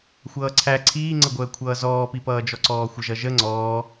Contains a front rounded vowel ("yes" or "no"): no